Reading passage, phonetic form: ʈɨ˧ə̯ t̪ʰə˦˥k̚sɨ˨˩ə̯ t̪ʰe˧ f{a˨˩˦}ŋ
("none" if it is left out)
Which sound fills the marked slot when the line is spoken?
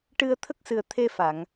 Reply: a˨˩˨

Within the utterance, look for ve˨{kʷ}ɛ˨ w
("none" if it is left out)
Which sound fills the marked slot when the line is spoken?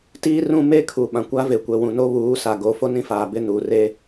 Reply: kʷ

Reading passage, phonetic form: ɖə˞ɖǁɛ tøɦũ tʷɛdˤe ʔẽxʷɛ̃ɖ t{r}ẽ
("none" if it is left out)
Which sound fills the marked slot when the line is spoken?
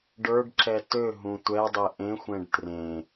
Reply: r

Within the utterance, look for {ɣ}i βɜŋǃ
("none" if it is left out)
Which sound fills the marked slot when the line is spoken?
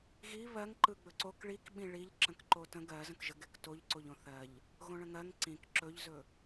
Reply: ɣ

